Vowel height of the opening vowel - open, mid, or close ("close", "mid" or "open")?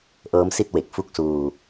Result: mid